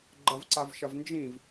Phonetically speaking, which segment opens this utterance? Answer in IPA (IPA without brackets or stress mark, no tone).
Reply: ɡ͡ǃ